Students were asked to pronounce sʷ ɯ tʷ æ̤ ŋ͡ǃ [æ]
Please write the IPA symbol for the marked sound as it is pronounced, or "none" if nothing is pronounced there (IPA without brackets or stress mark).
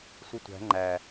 æ